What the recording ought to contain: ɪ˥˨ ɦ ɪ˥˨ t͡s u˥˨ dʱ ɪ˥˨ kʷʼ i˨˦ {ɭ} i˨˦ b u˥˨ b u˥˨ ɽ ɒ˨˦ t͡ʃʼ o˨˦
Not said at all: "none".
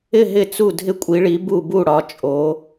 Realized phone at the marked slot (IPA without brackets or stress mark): ɭ